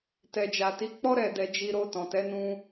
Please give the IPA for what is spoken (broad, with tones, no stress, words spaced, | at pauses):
tɛ˨d͡ʒa˨ti˨˦k͡pɔ˦ ɾɛ˦˨dɛ˧d͡ʒi˧ ɾo˧ tɔ̃˨tɛ˨˦ nũ˧